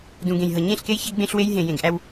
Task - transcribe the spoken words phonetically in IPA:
d ũ˨ ɡ ẽ˨ j ɦ ɤ˨ ɲ ẽ˦˨ ɬ k e˦ j ç æ˦ ɡ ɡ͡b ẽ˦ ɬ w e˦ j ɦ ẽ˨ j ẽ˨ ɡ ʔ æ˦ w

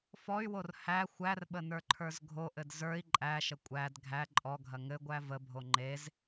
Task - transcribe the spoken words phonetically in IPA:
f ɔ y̯ w o r h æ xʷ æ r ɓ ə n ə˞ ǃʰ ə˞ z ɡʱ o ʔ ɘ d z ə˞ i̯ ǃʼ æ ʃ ə kʷʼ æ d ɡʱ æ ǃʼ ɔ ɡʱ ɐ ŋ ɘ ɡʷ æ v ə bʱ o ŋ͡ǃ e z

